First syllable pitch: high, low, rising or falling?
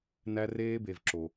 high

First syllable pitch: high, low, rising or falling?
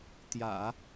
low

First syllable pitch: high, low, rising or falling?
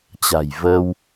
low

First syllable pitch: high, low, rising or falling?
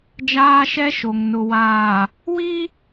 high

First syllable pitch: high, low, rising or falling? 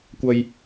low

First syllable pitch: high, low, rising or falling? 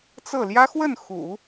falling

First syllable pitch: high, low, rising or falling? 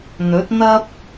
rising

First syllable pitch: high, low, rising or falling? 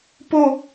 falling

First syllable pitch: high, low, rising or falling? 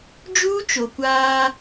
high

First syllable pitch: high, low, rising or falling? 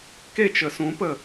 falling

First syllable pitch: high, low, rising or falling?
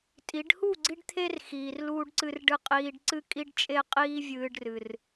rising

